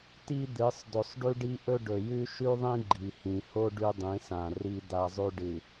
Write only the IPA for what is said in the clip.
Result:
t i˦ d̪ ɨ˨˦ sˤ d ɵ˨ sˤ ɖ ʉ˦ ɖ i˦ ʔ ɵ˦ ɖ ɵ˨ j ʉ˦ ʃ ʉ˦ ðˤ ĩ˦ ɡ͡ǃ i˨ h ĩ˨ h o˦ ɖ ʉ˦ dˤ ĩ˨˦ s ã˨ r i˦ d̪ a˦ zˤ ʉ˦ ɖ ɨ˨

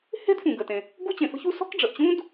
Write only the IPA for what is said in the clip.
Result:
h e̤˥ d f ũ˩ ɡ ə˩ t ẽ˩ | ɡ u˥ t͡ɕ ẽ˩ f ə̤˥ ç u˥ s ɔ̤˥ k ɖ͡ʐ ə˩ ʔ t͡ɕ ũ˥ d

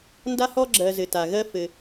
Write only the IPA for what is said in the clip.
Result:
n d a˧ h ɔ˧ ɡ͡ǁ ɜ˩ z ɘ˩ t a˩ ɣ ɜ˧ f ɘ˩

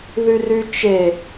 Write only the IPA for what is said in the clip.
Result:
ð y r y t͡ʃ e

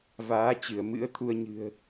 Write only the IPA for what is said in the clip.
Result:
v aː˨˦ t͡ɕ ɨ˧˩ ə̯ m ɨ̰˧˥ ə̯ t̪ʰ u˧ ə̯ ɲ ɨ̤˨˩ ə̯

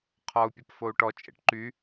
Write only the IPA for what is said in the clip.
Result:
qʰ ɔ u̯ pʲ ə p f o u̯ ʈ ɔ t͡ʃʼ ḛ ʈ ǃ y

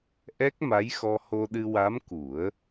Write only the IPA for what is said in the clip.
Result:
ʔ ɛ˦˥ k̚ m a˧˥ j x ɔ˧ h o˧ ɗ ɨ˧ w a˧˥ m k u˨˩˦ ə̯

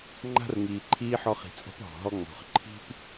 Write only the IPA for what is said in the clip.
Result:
ŋ͡ǃ a̤˦ r ŋ iː˨ ǃʰ iː˥ ħ ɔ˦ χ i̤˨ t͡sʼ ɔ̤˥ p ɦ ɔ̤˩ ɦ ɔ˥ ŋ͡m ɔ̤˨ χ ǃʰ i̤˥ p

